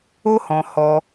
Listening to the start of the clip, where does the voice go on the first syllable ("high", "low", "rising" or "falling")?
high